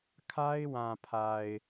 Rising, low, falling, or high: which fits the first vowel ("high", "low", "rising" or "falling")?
high